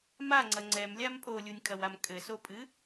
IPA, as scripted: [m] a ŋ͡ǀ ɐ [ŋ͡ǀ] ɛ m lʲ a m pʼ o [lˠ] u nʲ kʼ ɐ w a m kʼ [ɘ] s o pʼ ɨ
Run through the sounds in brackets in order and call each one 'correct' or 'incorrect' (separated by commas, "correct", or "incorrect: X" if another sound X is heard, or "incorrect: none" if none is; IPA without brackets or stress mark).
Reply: correct, correct, incorrect: lʲ, correct